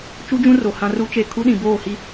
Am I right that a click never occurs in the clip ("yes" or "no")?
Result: yes